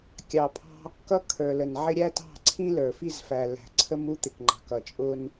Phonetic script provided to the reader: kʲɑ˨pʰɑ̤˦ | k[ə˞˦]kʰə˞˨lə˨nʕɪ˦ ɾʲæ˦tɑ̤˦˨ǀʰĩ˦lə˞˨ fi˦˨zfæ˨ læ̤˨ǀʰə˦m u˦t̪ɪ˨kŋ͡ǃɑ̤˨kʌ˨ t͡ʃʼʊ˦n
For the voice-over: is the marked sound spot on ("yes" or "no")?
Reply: no